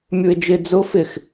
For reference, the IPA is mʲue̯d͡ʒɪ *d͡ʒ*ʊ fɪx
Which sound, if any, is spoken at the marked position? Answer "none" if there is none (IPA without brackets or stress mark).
d͡z